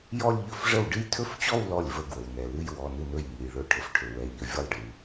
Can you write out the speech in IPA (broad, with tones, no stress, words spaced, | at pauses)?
jɔ˥˧lʲ ʎɵ˥˧fʐə˥˩w ɖɨ˥˧jtʰɵ˥˩ft͡ɕɔ˥˧w lɔ˥˩lʲvə˥˩ɡwə˩wnɛ˩ lɨ˥˧jwɔ˩˧˩nɨ˥˩nɵ˥˩j ŋɨ˩jɭɵ˥˧ ʈʰə˩fʈʰɵ˩wɛ˩˧˩ʎə˩˧˩ vʲə˥˩lˠɖɨ˩